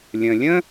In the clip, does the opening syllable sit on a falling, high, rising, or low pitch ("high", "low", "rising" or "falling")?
low